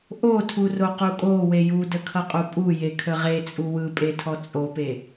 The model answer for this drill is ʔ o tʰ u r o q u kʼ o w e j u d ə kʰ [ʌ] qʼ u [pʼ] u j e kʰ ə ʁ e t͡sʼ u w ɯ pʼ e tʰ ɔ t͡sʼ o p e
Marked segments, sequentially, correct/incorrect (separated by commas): correct, correct